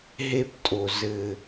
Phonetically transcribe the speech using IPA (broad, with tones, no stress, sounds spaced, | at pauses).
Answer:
ɦ e˦ p tʼ o˨ z ɘ˦